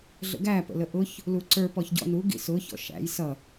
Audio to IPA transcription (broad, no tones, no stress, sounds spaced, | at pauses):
ɮ ə̰ ɡ æ p ə̰ l ə ʔ ʊ ç | l u ǀ ə˞ p ɔ ç ɟ ɔ̰ n u ɡ ḭ s ʊ ç ɔ̰ ʃ æ̰ j s ʌ